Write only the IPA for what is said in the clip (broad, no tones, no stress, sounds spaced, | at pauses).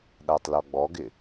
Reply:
ɗ a tˤ l ɔ ɡ͡b ɔ ɡ ɪ